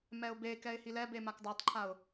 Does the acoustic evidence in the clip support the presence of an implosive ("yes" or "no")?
no